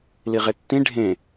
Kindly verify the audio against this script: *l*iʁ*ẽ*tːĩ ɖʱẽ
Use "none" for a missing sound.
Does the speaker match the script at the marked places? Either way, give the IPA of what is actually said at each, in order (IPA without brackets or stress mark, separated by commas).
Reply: l, e